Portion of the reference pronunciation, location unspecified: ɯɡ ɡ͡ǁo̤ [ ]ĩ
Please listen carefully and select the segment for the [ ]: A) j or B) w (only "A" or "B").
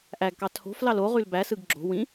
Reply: B